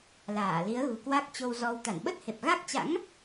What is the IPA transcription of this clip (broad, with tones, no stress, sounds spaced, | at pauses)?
l aː˧˩ l i˨˦ ə̯ ɣ ṳ˨˩ k w a˦˥ k̚ t͡ɕ o˧ w z ɔ˧ w t̪ a˧˩ n ɓ ə˦˥ t̚ h e˨˩ p̚ ɣ a˦˥ k̚ t͡ɕ a̰˧˥ ŋ